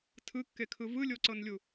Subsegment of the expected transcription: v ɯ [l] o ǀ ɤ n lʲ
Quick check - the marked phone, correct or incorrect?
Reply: incorrect